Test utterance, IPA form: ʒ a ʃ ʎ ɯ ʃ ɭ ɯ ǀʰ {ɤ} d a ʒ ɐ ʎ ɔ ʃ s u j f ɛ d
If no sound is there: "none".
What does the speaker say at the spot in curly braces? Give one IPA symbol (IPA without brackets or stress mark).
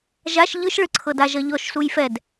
ɤ